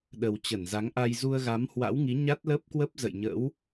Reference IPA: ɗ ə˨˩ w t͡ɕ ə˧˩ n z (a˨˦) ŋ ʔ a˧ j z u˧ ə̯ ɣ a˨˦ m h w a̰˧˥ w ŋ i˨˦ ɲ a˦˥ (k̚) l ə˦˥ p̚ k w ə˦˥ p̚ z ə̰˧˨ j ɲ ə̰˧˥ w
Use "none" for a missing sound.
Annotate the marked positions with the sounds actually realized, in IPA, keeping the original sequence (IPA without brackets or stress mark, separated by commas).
a˨˦, t̚